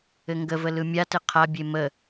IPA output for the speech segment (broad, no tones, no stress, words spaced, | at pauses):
ɘŋɡəvə lɯmʲatɘ qʰabʲe mə